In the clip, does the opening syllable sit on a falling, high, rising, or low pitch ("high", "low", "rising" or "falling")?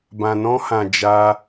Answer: low